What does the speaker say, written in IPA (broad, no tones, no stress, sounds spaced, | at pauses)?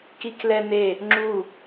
k i k l ɛ n e | ŋ͡ǁ u